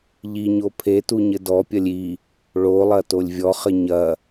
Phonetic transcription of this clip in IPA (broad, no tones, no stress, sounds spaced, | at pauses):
ʎ i ɲ o pʰ e t u ɲ ɘ d ɔ pʲ ɐ lʲ i | ɭ o lˠ ɐ t o lʲ vʲ ɔ χ ɘ ɲ ɐ